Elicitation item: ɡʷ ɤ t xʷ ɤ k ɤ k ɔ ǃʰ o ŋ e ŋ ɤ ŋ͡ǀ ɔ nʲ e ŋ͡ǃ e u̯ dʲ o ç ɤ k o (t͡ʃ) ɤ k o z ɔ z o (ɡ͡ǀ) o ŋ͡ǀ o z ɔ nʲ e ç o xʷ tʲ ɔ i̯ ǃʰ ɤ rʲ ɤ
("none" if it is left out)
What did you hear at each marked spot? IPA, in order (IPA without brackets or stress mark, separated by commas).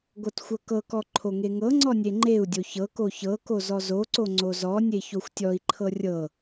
ç, ǀ